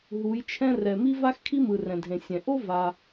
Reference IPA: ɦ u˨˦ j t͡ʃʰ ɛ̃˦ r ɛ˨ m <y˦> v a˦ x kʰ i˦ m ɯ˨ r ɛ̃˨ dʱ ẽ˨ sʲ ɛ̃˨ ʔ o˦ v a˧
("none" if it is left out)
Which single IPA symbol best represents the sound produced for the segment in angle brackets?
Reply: i˦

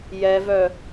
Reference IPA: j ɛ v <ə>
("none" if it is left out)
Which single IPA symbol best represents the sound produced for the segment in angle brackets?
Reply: œ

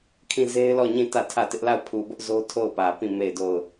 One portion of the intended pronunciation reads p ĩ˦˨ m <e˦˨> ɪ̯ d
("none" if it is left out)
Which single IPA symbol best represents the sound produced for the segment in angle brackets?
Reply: e˦˨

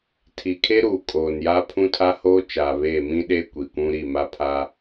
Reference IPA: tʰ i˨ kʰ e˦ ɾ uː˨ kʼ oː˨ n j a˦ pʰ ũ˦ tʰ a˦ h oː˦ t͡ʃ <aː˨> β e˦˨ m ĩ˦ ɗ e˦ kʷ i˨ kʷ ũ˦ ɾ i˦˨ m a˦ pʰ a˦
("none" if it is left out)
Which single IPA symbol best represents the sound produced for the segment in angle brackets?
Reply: aː˨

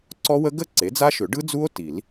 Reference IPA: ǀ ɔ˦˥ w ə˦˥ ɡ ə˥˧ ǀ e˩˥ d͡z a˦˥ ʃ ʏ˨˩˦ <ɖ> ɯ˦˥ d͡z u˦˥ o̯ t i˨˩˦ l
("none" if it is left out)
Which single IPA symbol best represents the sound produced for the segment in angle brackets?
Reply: ɖ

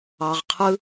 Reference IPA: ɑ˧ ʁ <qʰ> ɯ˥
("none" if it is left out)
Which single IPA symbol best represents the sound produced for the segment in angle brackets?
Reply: qʰ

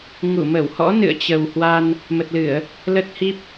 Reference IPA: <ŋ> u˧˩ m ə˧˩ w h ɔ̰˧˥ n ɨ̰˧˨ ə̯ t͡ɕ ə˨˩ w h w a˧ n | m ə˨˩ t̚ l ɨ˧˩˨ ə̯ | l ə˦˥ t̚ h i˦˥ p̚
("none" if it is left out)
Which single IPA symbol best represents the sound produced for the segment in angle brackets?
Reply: ŋ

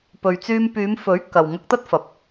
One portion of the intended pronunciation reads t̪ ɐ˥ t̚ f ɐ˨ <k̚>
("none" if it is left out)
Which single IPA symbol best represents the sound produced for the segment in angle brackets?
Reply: p̚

